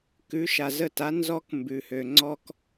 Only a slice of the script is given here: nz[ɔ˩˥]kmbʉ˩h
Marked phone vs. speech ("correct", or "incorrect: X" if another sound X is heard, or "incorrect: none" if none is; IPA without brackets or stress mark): incorrect: ɔ˧